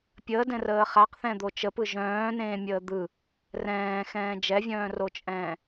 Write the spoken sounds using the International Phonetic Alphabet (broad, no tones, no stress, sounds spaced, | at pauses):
pʲ əː d ɛ̃ r əː χ a q θ ɛ̃ d̪ o t͡ʃ ə p ɯ ʒ œ̃ː n ẽː mʲ əː d̪ ɯ | r ɛ̃ː x ɛ̃ː d͡ʒ ɛ vʲ œ̃ː r o t͡ʃʼ ɛ̃ː